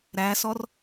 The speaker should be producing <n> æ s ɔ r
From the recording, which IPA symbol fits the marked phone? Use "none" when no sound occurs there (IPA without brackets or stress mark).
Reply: ɾ